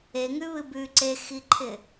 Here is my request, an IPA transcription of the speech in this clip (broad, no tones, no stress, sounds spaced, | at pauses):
e ŋ ʉ β ɨ b ʉ ǀ e x i ǃʰ ɪ